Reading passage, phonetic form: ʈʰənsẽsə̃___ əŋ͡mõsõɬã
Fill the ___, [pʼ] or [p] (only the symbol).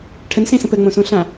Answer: p